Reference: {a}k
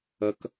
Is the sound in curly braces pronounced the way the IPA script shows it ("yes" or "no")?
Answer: no